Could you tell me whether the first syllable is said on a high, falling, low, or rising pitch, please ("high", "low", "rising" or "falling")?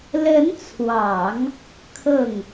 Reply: rising